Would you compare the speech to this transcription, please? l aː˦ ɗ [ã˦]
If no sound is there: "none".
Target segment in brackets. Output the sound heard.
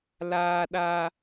a˦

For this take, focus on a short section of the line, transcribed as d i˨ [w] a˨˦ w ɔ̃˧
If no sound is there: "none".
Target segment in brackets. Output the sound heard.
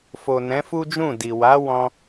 w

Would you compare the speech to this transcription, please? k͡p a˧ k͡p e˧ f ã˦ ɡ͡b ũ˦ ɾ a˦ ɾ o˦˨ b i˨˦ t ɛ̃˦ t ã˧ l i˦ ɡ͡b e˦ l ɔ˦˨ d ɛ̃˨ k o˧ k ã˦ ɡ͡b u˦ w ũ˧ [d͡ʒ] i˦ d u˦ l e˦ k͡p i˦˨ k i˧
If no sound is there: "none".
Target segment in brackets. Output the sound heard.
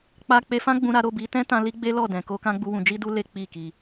d͡ʒ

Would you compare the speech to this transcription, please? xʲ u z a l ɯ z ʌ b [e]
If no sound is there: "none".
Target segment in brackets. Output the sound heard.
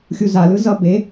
e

